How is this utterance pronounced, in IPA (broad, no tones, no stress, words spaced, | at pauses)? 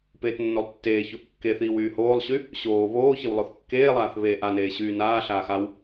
peːtnːolˠtːeːçoʔ kːeθiːw yːhoːlˠɕy | ɕoː βoːçɪw lˠoθkːeːlˠaːθ βeːʔaneː ɕyːnaːɬaːx aw